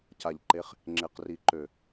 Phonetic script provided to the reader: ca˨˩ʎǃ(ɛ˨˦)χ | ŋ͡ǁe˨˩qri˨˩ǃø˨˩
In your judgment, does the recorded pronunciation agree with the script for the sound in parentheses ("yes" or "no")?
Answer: no